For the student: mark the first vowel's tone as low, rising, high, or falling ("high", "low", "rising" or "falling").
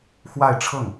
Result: falling